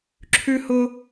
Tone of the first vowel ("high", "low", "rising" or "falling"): high